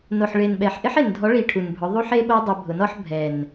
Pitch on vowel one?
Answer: low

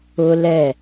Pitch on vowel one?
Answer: high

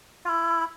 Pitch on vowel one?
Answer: high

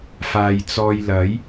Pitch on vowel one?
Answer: low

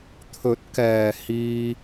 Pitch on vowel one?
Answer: rising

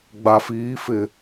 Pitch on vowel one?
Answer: low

